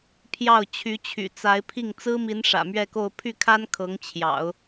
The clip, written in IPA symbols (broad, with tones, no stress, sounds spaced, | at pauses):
pʰ j ɑ˥˩ ʊ̯ t͡ɕʰ y˧˥ t͡ɕʰ y̰˨˩ t͡s a˧˥ ɪ̯ pʰ i˥˩ ŋ t͡s ɹ̩˥ m i˧˥ n ʂ ä̰˨˩ m ɥ ɛ˥˧ k o˥˧ ʊ̯ pʰ y˥˩ kʰ a˥ n kʰ ɤ˧˥ ŋ t͡ɕʰ j ɑ̰˨˩˦ ʊ̯